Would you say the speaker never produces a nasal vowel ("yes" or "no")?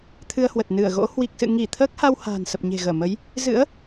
yes